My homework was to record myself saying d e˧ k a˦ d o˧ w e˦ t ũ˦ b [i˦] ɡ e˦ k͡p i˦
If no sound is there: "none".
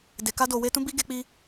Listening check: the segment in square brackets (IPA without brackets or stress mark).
i˦